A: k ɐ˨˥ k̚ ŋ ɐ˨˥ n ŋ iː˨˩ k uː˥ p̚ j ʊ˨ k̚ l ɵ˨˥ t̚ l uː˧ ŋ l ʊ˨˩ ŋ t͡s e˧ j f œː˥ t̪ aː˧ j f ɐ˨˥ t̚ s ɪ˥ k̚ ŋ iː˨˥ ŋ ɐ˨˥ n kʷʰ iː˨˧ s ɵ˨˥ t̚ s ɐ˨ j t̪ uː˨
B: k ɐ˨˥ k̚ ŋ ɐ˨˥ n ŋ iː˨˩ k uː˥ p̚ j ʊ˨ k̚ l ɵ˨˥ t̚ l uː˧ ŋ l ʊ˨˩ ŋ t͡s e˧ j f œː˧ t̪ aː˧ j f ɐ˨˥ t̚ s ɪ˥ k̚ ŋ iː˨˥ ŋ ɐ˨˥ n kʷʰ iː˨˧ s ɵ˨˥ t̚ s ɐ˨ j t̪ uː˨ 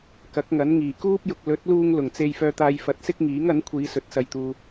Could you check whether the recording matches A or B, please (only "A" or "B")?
B